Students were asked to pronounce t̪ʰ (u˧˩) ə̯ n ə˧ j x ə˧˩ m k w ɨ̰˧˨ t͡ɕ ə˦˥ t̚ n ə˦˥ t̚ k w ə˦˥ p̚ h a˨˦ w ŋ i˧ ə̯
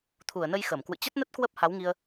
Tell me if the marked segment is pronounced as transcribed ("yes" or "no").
yes